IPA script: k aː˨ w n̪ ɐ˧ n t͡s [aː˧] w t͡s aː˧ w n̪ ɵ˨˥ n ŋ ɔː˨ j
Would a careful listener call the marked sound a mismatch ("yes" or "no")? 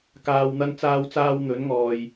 no